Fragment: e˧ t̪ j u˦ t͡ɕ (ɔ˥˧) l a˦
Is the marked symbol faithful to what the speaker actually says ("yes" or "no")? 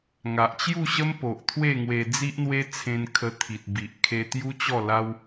yes